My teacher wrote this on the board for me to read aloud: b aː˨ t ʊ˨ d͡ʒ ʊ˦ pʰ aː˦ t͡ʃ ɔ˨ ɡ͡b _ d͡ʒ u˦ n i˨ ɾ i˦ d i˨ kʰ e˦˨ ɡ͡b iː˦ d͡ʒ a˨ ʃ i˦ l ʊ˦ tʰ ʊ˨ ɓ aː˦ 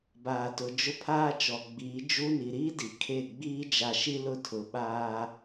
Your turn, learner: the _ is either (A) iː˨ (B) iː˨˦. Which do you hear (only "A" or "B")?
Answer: B